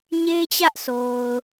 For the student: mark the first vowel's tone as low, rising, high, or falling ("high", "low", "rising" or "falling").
high